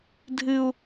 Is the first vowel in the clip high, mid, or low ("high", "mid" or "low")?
high